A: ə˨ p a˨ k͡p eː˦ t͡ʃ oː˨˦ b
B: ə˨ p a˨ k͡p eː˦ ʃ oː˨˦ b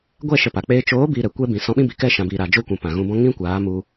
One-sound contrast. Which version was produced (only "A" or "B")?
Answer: A